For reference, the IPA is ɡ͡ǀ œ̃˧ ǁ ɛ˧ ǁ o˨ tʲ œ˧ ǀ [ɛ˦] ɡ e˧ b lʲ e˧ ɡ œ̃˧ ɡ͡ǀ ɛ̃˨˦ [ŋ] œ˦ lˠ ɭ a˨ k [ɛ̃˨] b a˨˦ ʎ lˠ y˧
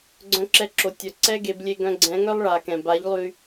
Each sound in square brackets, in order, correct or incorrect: correct, correct, correct

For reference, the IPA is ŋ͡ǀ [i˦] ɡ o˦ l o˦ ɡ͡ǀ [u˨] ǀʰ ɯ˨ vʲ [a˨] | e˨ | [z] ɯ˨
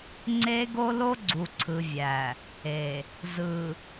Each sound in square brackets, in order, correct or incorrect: incorrect: e˦, correct, incorrect: æ˨, correct

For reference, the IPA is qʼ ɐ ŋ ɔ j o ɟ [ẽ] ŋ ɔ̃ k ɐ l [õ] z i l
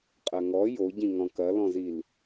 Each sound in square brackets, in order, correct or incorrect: incorrect: ĩ, incorrect: ɔ̃

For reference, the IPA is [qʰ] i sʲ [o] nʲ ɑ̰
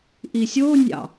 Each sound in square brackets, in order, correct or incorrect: incorrect: ʔ, correct

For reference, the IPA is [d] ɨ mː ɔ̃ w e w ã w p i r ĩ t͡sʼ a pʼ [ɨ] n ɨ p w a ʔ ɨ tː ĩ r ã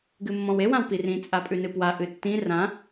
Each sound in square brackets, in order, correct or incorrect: incorrect: ɡ, incorrect: ʉ

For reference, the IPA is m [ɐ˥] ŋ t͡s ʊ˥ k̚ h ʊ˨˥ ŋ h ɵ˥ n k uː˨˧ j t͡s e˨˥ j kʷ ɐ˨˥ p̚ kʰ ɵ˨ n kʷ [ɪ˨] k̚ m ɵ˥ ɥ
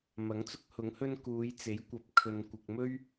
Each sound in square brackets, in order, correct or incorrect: incorrect: ɐ˨˥, correct

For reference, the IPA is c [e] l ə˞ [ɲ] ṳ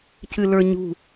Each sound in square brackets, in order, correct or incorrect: incorrect: ɨ, correct

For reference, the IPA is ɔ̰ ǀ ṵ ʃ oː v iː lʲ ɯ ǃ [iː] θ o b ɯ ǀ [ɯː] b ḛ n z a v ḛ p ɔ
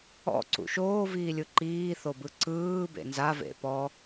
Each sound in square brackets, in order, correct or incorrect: correct, correct

